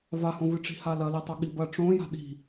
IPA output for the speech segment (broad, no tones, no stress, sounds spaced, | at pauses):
v a h õ v ɨ ʈ͡ʂ i̤ h a l ɐ l i tˤ o ɠ i b ɐ ʈ͡ʂ õ j a̤ ɗ i̤